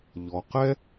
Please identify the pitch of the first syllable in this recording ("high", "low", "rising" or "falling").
low